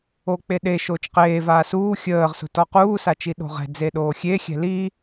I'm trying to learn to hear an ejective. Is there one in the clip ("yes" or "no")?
no